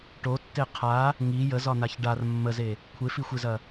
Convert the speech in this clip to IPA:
ʈ o tː e qʰ a | ŋ i j ə z ɒ n̪ a ç ɖ a r mː ə z e | kʷʰ e f i xʷ e z ɐ

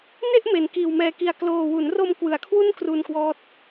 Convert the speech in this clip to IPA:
n e˥˩ ʔ m e˨˩ n k iː˨˩ w m ɛː˧ k i˧ a̯ k l oː˧ w u˩˦ n r o˧ m k w ɯ˩˦ a̯ kʰ w u˥˩ n k r u˧ n k w ɔː˥˩ t̚

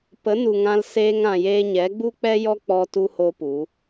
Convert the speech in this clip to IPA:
p ə˨˦ n u˨ ŋ ã˧ l s eː˧ ŋ ã˨ j eː˧ ɲ ɛ˨˦ ɡ͡b u˦ k͡p ɛ˦ j ɔ˦ k͡p ɔ˧ t u˦ h o˦ p u˨˦

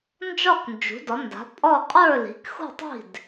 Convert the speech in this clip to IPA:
n d͡ʒ ɒ˥˩ k n d͡ʒ ṳ˩˥ d ɒ˩˥ n d a̤˩˥ pʼ ɒ˥˩ qʼ ə˞˥˩ l i̤˩˥ k x ṳ˥˩ tˤ i̤˥˩ d

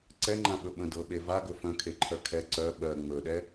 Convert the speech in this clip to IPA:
ǀ ɛ ŋ͡ǃ ã ɓ ɵ ɓ ə̃ d ɤ ɓ e v a ɡ ɵ f œ̃ kʰ e ǃʰ œ kʰ ɛ ǀ œ ɓ ɜ ŋ͡m ɵ ɗ ɛ

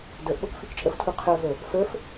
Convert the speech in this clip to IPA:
d ə˞ ʔ ɠ o k f i k t͡ʃʼ ə f tʰ u qʰ ə˞ v ə˞ | f ə˞ f

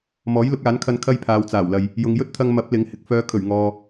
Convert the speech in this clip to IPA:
m ɔː˨˥ j l ʊ˨˥ k̚ aː˨˥ n kʰ ɐ˧ n kʰ ɐ˥ j pʰ aː˨˧ w t͡s aː˨˩ w l ɐ˨ j | j ʊ˨ ŋ j ɵ˥ t̚ t̪ʰ ɐ˧ ŋ m ɐ˨˥ p̚ l ɪ˨˥ ŋ h ɪ˨ k̚ f œː˨˧ kʰ ɵ˨˩ ɥ ŋ ɔː˨

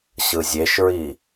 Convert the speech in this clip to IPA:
ɕ ɯ zʲ e ʃ ɹ i

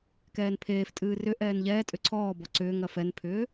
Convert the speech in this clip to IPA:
k ɛː n pʰ eː f tʼ ɨː r ʏ ʔ ɛː n ʎ ɛː tʼ ʏ ǀʰ ɔː b ɔ ǀ ʏː ŋ ɐ f ɛ n pʰ ʏː

